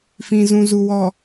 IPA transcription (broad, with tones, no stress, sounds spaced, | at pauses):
f ĩ˨ z ũ˨ z u˨ w ɔ˨